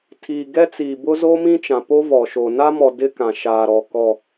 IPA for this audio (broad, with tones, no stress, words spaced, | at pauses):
tʰiː˨ɡɛ˦t͡siː˨bʊ˦ zoː˦mĩ˦t͡ʃã˨ po˦ vɔ˨ʃo˨ na˦mɔ˨ dɪ˦ kã˨ʃaː˨ɾɔ˨ kɔ˨